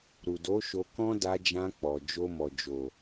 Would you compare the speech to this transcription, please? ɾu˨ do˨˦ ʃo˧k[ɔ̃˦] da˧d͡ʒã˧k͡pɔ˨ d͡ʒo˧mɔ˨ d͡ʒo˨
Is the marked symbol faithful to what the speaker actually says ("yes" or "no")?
yes